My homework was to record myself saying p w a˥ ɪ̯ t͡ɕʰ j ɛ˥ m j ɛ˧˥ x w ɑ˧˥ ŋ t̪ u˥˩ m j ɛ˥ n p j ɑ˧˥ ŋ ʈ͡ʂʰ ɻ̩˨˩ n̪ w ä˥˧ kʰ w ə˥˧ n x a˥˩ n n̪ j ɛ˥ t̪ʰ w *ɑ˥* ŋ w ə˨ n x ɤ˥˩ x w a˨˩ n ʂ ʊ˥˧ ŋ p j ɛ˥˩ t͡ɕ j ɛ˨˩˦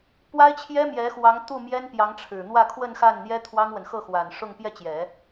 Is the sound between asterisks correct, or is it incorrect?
correct